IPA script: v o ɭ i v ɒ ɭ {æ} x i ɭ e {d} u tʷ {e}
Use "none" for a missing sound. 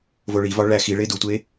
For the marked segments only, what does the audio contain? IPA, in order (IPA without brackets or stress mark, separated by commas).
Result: æ, d, e